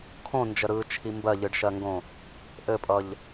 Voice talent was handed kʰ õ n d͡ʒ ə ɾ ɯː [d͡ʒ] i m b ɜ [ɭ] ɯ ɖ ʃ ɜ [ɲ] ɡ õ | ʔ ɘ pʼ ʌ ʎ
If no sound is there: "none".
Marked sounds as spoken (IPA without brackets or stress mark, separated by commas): t͡ʃʰ, ʎ, ŋ